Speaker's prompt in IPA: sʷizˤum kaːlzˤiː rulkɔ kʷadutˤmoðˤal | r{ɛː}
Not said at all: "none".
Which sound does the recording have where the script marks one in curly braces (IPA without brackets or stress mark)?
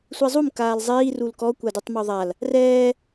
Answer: ɛː